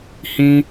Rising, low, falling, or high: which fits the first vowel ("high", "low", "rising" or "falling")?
high